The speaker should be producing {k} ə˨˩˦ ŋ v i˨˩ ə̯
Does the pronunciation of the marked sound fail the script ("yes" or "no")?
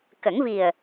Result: no